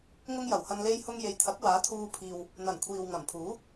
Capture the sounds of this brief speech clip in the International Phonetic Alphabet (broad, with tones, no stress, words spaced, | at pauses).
ŋʊ˥ŋ jɐ˨˩whɐ˧n le˥jhʊ˥ŋ je˨jt̪ʰɐ˨˥k̚waː˨˥t̪ʰuː˧ pʰiː˧w | n̪ɐ˨˩n kʷʰiː˨w ŋɐ˨˩mpʰuː˨˥